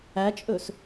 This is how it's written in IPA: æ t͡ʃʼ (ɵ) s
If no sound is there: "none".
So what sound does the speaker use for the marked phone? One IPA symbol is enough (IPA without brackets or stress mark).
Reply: ɵ